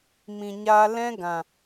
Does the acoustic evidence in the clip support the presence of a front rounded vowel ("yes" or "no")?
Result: no